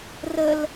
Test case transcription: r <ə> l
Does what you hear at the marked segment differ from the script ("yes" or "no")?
no